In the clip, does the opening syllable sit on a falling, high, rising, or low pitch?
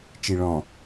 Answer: low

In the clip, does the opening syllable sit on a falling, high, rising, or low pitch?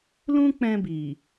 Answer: high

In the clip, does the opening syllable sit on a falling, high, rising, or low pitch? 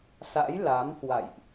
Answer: rising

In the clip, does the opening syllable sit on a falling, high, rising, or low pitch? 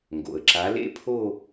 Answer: low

